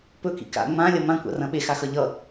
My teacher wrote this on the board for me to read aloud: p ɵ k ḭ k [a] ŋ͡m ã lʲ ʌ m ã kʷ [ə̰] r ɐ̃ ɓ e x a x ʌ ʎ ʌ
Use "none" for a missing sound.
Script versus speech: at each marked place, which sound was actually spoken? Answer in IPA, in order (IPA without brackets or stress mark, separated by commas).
a̰, a̰